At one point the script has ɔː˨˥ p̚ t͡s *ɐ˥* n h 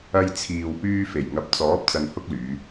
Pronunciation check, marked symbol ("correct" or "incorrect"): incorrect